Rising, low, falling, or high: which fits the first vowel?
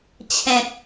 low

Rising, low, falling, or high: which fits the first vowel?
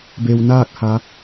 low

